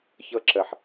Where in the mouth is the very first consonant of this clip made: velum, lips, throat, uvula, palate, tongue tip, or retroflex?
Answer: palate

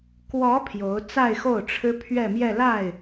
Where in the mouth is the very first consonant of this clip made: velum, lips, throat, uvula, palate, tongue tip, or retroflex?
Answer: velum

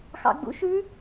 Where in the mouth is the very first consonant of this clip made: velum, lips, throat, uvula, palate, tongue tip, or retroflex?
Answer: velum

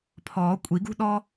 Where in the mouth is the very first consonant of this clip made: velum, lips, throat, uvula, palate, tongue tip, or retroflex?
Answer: lips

